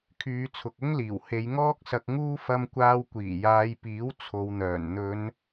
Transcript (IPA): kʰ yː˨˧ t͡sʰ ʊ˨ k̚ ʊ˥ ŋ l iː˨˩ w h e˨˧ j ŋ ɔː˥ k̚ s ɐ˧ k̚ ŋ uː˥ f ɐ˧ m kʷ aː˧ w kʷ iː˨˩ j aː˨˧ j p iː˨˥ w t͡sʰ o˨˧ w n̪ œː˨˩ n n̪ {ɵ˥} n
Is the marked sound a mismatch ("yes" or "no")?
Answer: yes